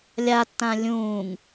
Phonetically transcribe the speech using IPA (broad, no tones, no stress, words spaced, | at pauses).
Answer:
lʲatːã lʲũːŋ